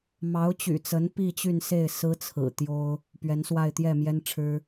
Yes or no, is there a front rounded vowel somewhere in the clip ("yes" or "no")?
yes